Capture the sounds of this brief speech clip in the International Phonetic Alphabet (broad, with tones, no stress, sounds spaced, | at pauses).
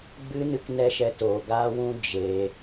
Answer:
ɡ͡b ɨ˦ n ɨ˦ k n ɛ˦ ʃ ɛ˧ t oː˨ ɡ aː˦ w ũ˦ d͡ʒ e˧